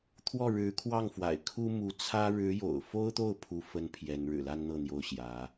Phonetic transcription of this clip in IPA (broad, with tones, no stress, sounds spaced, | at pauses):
t̪ʰ w ɔ˥˩ ɻ ɻ̩˧˥ kʰ w ɑ˥˩ ŋ f w a̰˨˩ ɪ̯ kʰ u˥ m u˧˥ t͡sʰ ä˥ ɻ ɻ̩˧˥ j o̰˨˩ ʊ̯ f o˥ ʊ̯ t̪ o˥˩ ʊ̯ pʰ u˥ f ə˥ n pʰ j ɛ˧˥ n ɻ ɻ̩˨˩ l a˥ n n̪ ɤ˥˩ n̪ j o˥ ʊ̯ ɕ j ä˧˥